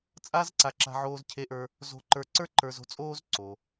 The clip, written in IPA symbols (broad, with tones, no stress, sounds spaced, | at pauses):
t͡sʼ a˥ z ǀ a˧ ǁ a̤˧ ʕ oː˧ z cʰ e˧ ʔ ə˞˧ | z o̤˧ ǃ ə˞˧ ǀ ə˞˥ ǃ ə˞˧ z o̤˥ t͡sʼ oː˥ z ǀ o˩